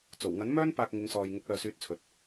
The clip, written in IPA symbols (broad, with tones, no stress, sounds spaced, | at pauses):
t͡s o˨˩ w ŋ ɐ˨˥ n m œː˥ n p aː˧ k̚ ŋ ɪ˨˧ ŋ s ɔː˨ j ŋ ʊ˨˥ k̚ l œː˨ s yː˨˥ t̚ t͡sʰ ɵ˨ t̚